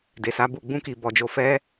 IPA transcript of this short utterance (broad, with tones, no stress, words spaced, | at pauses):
de˨sa˨˦bu˦˨ ɡ͡bũ˧ki˨bɔ˨d͡ʒo˨ fɛ˧